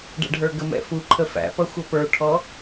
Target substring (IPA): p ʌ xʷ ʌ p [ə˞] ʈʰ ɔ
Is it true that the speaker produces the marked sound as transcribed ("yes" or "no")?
yes